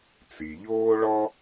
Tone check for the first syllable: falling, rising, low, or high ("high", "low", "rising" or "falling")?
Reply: low